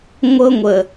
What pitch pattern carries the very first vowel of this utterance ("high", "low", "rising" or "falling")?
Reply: high